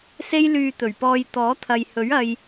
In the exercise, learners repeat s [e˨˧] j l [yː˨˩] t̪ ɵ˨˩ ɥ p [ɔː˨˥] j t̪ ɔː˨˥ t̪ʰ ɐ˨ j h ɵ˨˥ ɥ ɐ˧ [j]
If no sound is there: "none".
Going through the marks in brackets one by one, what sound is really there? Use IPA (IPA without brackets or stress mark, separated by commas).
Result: e˥, yː˧, ɔː˧, j